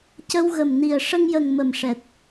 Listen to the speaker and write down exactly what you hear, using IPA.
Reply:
c ə˧ w ɣ ə˨˩ m n i˨˩ ə̯ ʂ ə˧ ŋ j ə˨˩ ŋ m ə˨˩ m ʂ ɛ˨˩ t̚

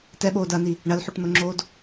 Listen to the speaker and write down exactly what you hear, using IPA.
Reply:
t ɛ ɓ oː d ɐː n i | ɳ ɐ l ħ o ʈ n̪ o ŋ͡ǁ oː d

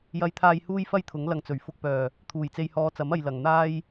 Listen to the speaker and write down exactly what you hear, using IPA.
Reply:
j ɐ˨ j t̪ʰ aː˨ j h uː˧ j f ɐ˧ j t̪ʰ ʊ˨˥ ŋ l ɐ˨˧ ŋ t͡s ɵ˨˩ ɥ f ʊ˨ k̚ p œː˨˩ | t̪ʰ uː˨˩ j t͡s e˨ j h ɔː˨˧ t͡s ɐ˨˥ m ɐ˧ j l ɐ˨ ŋ n̪ aː˧ j

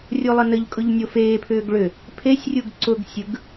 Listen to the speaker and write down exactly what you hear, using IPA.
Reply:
rʲ o lˠ ə n ə ʎ kʼ ʊ ʎ nʲ o f eː pʰ ʏː ɡ ɭ ʏ | pʰ e sʲ rʲ u ɡ ǀ ʊ ɡ sʲ ɯ ɡ

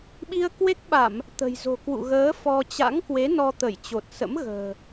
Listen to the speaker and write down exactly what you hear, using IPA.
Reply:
ɓ i˧ ə̯ k w e˦˥ k̚ ɓ a˧˩˨ m | t̪ ə̤˨˩ j z o̤˨˩ k w ṵ˧˨ ɣ əː˨˦ f ɔ˧ t͡ɕ a̰˧˥ ŋ k w e˨˦ n ɔ˧ t̪ ə˧˩ j t͡ɕ o˨˩ t̚ s ə̰˧˥ m ɣ ə̤ː˨˩

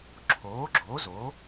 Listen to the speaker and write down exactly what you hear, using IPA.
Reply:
ǁʰ oː˨˥ ɡ͡ǁ oː˨˥ z o˨˥

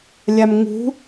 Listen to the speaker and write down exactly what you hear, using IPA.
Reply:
lʲ a m ŋ ṳ

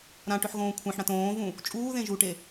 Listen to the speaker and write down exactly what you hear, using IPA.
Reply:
ɾ ã ʈ ʏ ħ ɣ õː kʷʰ ẽ ħ ɽ ã t õː v ũ | t͡ʃʼ uː ð ẽ ʒ u ʈ e

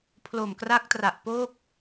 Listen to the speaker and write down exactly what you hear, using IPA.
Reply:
pʰ l o˨˩ m k r a˦˥ k̚ t r a˨˩ ʔ p o˥˩ k̚

